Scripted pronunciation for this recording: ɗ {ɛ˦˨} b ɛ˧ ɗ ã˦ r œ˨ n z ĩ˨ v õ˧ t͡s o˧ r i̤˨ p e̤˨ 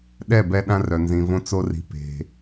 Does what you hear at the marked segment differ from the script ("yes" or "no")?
no